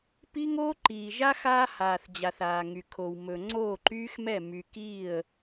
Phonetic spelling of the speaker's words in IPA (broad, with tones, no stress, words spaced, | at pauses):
pi˦ŋoː˦ǃiː˨ʒa˦ xaː˦haː˨θd͡ʑa˨θ aː˨ŋy˨kʰo˨w mɵ˨ ŋ͡ǀoː˦˨ǃyː˦xmɛ˦˨ my˨kiː˦˨ə̯